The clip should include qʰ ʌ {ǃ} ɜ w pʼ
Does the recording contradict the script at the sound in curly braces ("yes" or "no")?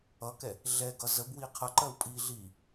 no